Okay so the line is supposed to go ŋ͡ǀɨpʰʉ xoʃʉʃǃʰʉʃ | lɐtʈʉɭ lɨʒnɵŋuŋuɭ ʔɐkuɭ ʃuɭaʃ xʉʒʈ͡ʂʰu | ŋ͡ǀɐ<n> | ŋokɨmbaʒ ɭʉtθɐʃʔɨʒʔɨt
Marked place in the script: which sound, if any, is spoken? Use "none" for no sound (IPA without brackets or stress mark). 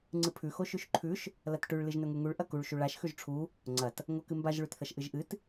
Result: t